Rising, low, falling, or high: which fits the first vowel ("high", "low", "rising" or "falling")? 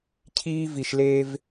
high